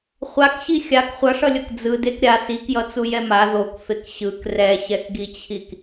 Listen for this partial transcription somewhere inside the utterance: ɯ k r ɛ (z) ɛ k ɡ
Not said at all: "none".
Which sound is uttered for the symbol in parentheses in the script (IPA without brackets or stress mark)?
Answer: ɕ